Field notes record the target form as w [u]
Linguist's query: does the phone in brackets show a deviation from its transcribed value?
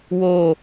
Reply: yes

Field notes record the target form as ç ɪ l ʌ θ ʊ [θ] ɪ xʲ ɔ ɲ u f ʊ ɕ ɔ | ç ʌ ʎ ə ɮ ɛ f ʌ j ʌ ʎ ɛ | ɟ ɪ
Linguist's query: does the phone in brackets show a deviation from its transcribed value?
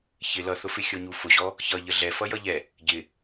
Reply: yes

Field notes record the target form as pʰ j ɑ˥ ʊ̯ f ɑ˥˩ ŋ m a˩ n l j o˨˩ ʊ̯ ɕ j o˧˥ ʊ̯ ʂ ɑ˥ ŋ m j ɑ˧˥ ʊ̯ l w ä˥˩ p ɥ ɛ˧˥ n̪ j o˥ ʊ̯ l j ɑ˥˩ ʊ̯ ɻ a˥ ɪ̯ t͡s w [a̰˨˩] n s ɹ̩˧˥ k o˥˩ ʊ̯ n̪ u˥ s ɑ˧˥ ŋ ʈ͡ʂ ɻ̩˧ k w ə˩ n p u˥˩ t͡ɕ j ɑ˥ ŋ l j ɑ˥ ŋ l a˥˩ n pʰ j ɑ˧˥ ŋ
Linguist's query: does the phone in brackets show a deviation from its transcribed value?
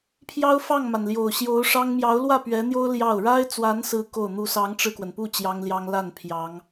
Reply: yes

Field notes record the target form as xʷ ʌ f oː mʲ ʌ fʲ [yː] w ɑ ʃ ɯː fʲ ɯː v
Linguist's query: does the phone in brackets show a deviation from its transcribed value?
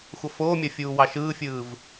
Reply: yes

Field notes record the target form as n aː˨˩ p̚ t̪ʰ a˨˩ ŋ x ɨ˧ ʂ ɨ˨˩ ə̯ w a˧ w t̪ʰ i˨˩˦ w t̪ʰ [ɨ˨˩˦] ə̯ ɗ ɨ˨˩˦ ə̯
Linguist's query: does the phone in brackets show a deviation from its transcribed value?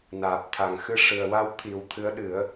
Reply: yes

